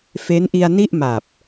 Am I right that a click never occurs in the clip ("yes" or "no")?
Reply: yes